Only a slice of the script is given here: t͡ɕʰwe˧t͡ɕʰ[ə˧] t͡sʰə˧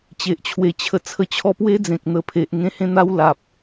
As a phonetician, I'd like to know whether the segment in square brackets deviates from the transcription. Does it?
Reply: no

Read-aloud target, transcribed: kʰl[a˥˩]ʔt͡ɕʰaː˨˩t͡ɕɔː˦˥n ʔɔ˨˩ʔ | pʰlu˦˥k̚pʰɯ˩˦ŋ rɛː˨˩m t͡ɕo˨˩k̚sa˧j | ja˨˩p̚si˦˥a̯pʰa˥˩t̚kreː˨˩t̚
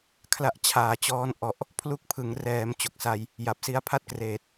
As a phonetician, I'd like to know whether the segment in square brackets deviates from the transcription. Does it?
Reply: yes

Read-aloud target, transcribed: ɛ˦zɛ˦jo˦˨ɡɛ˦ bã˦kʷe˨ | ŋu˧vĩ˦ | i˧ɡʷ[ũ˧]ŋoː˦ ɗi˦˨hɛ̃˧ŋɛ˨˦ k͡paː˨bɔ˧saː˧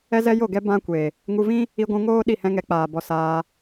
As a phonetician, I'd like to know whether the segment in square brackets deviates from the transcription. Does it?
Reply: no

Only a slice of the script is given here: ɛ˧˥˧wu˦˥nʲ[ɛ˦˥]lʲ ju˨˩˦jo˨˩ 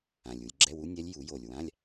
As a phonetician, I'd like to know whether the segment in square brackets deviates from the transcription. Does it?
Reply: no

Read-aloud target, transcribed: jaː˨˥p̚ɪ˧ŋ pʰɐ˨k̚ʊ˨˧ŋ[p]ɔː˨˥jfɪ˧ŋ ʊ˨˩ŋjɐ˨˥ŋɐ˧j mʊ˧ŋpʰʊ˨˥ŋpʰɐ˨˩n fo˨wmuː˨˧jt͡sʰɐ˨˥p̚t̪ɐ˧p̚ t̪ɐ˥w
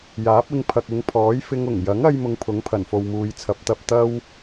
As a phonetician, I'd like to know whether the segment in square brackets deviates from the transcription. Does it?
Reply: yes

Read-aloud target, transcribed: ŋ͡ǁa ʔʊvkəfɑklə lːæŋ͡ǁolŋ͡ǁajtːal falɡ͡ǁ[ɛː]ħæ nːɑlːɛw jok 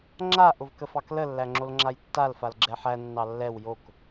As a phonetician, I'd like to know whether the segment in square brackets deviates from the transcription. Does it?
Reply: yes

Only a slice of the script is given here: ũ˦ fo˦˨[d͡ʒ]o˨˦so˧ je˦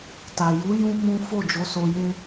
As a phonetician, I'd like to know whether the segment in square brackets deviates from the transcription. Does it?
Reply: no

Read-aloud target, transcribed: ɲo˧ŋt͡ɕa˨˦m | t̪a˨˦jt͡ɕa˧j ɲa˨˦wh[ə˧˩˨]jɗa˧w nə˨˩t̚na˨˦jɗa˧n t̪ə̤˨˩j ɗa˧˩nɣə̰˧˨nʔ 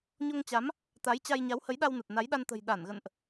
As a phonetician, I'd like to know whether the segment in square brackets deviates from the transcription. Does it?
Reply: yes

